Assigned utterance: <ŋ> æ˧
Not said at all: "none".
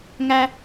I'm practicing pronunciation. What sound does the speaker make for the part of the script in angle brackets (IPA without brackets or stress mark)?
ŋ